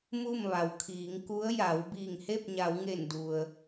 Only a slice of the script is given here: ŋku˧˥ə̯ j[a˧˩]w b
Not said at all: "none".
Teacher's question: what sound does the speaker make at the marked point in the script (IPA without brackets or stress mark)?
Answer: a˩˧